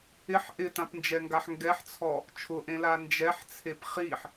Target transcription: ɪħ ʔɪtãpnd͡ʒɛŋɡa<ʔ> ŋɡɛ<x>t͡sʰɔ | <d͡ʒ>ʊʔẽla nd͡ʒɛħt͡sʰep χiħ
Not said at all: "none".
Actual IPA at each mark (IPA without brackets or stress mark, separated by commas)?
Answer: ħ, ħ, t͡ʃʰ